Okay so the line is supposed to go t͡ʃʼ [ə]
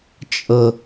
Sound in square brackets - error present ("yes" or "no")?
no